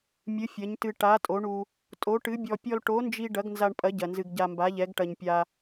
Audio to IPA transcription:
mʲɨ˨˥fʲɐ˨˥ɲtɨ˧ ʈa˨˥tʼo˨˥ɳu˧ | tʼo˨˥ʈɨ˨˥bʲɔ˧ pʲɔ˧lʈo˨˥nd͡ʒi˧ ɖɐ˨˥ɡnza˧ɳpʼɐ˨˥ ɟɐ˧nzɨ˧ɡ ɟa˧mba˨˥ʎɛ˨˥ɡ ʈɐ˧ɲ pʲa˧

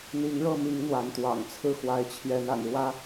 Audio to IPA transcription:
n̪i˨˦ŋɻɤ˥˨ mi˨˦ŋ n̪wa˨˦nt̪wɑ̰˨˩ŋt͡sʰɹ̩˥˨ xwa˨˦ɪ̯t͡ɕʰjɛ˨˦n a̰˨˩nɻwä˦

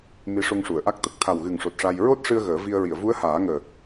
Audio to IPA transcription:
mi˧˥ʂo˧ŋʂu˨˩˨ə̯ʔa˦˥k̚ t̪ə˨˩k̚t̪ʰa˨˩wɣɨ˨˩ŋʂo˨˩t̚ ʂa˧j ɹo˦˥t̚ʂɨ˧ə̯ ɣəː˨˩˦vi˧ə̯ ɹi˨˩˨ə̯vu˧˥ə̯ haː˨˩˦ŋəː˨˩

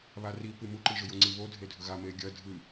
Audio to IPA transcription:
βaripɨ muǃi ʒɵjoŋ͡ǀi βodʱe dʱɵɣa meɡʲɐ dʱɨ

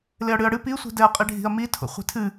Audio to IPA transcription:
leɐ̯ɽɨɐ̯ɽɨ pisʷi̤dɛɐ̯ qʼiɖʱi̤ɐ̯mi tʰo̰χʷi̤tʰɨ

